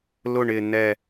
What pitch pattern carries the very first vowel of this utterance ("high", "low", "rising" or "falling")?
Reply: falling